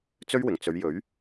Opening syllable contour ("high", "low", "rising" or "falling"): high